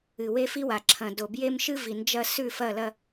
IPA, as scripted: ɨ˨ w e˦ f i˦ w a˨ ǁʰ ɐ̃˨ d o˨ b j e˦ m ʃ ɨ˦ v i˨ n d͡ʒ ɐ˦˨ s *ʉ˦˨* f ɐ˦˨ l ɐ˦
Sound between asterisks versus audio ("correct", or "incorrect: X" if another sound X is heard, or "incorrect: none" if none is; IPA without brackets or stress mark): correct